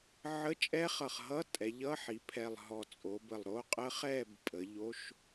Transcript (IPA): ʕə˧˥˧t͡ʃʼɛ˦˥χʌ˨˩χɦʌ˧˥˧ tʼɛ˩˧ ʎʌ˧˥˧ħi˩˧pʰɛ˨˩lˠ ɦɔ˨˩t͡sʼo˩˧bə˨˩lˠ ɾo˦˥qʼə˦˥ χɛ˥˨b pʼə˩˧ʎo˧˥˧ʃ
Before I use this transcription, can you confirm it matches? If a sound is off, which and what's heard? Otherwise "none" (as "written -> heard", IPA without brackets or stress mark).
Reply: none